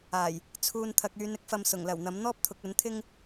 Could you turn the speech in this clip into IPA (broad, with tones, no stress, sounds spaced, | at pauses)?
aː˨˩ j | t͡sʰ uː˨ n t̪ʰ ɐ˨ k̚ yː˨˧ n ɪ˥ k̚ f ɐ˨ m s ʊ˨˩ ŋ l ɐ˨˩ w n̪ ɐ˨˥ m n̪ ɔː˥ p̚ t̪ʰ ʊ˨˥ k̚ ɵ˨˥ n t̪ʰ ɪ˥ ŋ